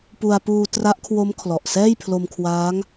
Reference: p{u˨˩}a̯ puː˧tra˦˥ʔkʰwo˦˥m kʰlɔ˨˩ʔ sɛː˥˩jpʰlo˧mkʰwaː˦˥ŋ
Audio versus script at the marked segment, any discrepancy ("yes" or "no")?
yes